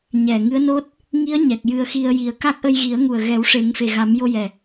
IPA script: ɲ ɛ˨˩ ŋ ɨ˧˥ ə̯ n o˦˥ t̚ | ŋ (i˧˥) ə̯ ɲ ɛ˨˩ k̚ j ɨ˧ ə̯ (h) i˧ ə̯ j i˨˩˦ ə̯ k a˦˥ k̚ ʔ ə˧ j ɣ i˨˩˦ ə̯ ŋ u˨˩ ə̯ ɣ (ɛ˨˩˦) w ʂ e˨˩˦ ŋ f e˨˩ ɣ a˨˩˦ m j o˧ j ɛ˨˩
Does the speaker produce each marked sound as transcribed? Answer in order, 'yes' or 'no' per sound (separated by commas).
yes, no, yes